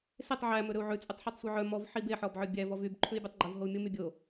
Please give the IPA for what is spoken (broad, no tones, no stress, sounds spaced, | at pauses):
s e tˤ ʕ æ m ɵ ɾ ɵ u̯ ʕ ʉ t͡sʼ ʉ tˤ ħ ɔ tˤ sʷ œ ʕ œ m ɔ v ħ i b e ħ ɔ b ʕ œ bʲ æ v ɔ v y b ǃʰ ʉ i̯ bʲ æ tˤ ɡ͡ǃ ɵ v ɦ o u̯ mʲ o m y bʲ o